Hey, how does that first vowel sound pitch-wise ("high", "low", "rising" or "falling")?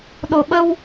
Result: low